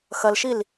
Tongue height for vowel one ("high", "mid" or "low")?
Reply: low